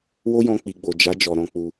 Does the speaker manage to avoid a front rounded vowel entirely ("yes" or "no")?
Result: yes